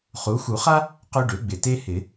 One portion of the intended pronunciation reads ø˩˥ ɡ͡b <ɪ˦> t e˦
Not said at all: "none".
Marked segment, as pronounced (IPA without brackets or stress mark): ɪ˨˩